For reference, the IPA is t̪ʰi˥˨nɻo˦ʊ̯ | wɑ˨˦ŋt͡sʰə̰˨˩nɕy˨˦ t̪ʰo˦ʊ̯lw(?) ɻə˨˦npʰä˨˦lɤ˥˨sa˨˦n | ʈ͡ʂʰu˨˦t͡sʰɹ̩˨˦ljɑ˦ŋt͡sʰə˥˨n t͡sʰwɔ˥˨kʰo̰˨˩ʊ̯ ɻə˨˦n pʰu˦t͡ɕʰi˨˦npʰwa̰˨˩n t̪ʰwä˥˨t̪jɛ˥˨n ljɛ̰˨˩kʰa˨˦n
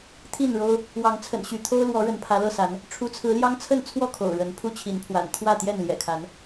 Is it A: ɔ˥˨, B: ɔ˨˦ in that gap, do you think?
B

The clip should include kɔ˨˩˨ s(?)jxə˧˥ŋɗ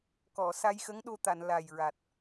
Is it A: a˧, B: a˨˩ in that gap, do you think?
A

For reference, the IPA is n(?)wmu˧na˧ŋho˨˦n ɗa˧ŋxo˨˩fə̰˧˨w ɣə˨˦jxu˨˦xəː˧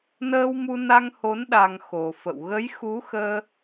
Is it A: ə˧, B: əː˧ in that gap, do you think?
B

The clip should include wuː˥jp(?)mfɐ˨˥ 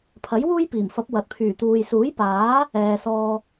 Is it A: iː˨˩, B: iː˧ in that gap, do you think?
A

